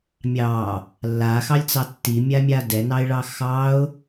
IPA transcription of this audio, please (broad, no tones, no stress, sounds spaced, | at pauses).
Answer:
mʲ ɑ | lː a x ɑ lʲ t͡s ɑ tː i mʲ a mʲ a d ɛ n ɑ ɪ̯ ɭ ɑ x ɑ ʊ̯